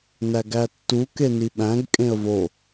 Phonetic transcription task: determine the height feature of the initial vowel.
low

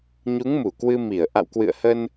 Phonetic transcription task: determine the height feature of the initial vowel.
high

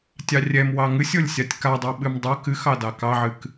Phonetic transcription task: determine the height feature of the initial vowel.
low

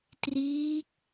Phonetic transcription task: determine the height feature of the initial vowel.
high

